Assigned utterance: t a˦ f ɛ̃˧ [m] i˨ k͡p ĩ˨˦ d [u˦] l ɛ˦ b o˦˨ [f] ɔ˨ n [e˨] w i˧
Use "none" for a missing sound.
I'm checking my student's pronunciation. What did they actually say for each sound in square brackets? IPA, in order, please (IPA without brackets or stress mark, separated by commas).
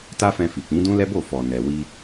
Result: f, ũ˦, f, ɛ˨